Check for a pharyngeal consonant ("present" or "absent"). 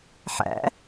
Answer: present